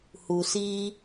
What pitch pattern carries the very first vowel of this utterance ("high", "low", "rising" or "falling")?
low